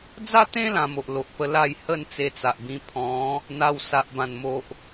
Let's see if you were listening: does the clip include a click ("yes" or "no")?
no